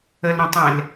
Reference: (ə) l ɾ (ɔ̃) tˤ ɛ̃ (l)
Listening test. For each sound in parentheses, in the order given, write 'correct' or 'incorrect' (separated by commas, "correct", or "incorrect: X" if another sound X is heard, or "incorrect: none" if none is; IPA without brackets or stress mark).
correct, incorrect: õ, correct